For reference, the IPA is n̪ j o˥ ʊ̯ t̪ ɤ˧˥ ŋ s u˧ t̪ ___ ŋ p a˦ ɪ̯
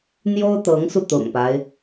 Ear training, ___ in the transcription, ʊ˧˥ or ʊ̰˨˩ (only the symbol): ʊ̰˨˩